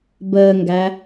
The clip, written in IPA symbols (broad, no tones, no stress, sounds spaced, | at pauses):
b əː ŋ ɡ æ